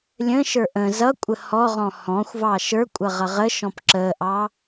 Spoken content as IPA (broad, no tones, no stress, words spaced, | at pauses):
lʲə̃ʃə˞ ʔə̃ zʌkʷʼə hɔʁɔ̃ hɔ̃xʷvɑ ʃə˞kʷʼʌʁʌ ʁəʃɔ̃p ǁəʔɑ